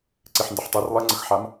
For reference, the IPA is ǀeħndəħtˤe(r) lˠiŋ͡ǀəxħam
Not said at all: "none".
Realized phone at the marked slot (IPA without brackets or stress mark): r